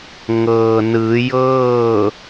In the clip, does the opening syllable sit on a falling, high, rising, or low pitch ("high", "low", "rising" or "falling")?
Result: low